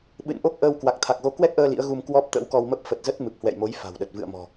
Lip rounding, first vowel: unrounded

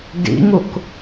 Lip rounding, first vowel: unrounded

